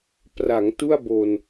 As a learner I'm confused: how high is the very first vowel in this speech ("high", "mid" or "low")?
low